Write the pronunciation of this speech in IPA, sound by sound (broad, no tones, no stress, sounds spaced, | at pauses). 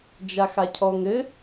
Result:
d͡ʒ a x a cʰ ɔ ŋ ɘ